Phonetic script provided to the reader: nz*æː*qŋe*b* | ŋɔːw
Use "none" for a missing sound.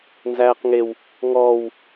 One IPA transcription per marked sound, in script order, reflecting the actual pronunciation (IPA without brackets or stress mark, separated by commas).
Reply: æː, w